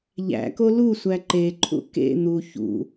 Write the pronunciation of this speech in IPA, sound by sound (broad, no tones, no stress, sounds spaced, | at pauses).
ʎ æ̰ k o l u sʷ æ ǃ e ǃʰ ṵ k ḛ n̪ u ç ṵ